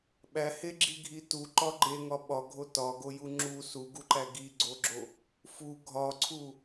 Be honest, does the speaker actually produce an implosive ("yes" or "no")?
yes